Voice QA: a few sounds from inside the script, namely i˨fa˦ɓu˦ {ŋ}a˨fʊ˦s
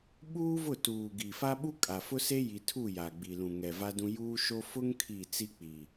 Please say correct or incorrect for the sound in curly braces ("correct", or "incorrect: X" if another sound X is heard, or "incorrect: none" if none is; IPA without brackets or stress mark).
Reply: incorrect: kʼ